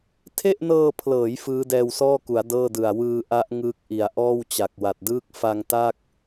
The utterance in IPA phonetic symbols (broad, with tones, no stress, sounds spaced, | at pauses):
tʰ e˥˩ ʔ n ɤː˧ pʰ l ɤː˩˦ j f ɯː˦˥ d ɛː˧ w s ɔː˥˩ k u˩˦ a̯ d ɤː˥˩ d ɯ˨˩ a̯ w ɯː˧ ʔ a˦˥ ʔ ŋ ɯː˦˥ k̚ ʔ i˨˩ a̯ ʔ ɔː˥˩ w t͡ɕ a˨˩ k̚ w a˨˩ t̚ d ɯː˥˩ k̚ f a˧ ŋ t a˥˩ k̚